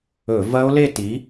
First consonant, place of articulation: labial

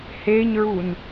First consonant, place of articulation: glottal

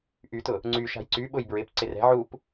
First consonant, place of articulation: glottal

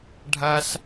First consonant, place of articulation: retroflex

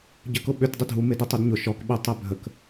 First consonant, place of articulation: palatal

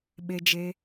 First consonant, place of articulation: labial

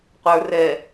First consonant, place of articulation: uvular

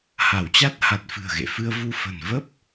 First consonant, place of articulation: glottal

